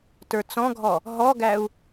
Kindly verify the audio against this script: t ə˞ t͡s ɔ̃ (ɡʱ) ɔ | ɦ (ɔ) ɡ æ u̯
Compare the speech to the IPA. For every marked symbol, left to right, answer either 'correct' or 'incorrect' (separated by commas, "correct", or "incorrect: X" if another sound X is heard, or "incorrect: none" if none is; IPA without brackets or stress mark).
correct, correct